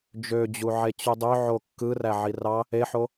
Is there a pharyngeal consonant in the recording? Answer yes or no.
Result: yes